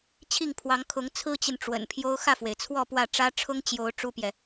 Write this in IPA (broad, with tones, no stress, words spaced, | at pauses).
t͡ɕʰi˥˩ŋpʰwɑ˧˥ŋkʰʊ˧˥ŋ t͡sʰɹ̩˥t͡ɕi˨n ʈ͡ʂwə̰˨˩npʰjo˥ʊ̯ xä˥˩fwe˩ɪ̯t͡sʰwɔ˥˧ pwä˥˩ ʈ͡ʂä˥ ʈ͡ʂʰʊ˥ŋt͡ɕjo˧˥ʊ̯ ʈ͡ʂu˥pjɛ˨